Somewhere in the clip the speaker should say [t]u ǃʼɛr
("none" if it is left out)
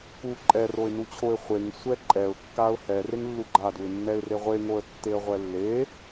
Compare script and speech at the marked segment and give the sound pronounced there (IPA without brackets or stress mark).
k